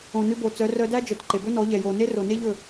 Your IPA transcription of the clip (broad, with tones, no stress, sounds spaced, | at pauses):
õ˨ n ʉ˧ b o˨ t͡s œ˨˦ r œ˧ d æ˦ d͡ʒ œ˨ t ǃ e˨ b ɵ˦ n ɔ˨˦ ʎ ɛ˨ j o˨ n e˦ r o˨ n e˦ ʎ ɵ˦˨